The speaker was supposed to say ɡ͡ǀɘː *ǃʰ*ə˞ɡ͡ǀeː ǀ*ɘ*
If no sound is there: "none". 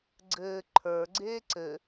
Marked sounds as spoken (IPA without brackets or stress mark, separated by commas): ǃʰ, ɘ